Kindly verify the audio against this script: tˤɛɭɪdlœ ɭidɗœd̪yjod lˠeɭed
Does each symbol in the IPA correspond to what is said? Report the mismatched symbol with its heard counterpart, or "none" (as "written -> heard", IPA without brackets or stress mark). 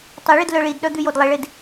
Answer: ɪ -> i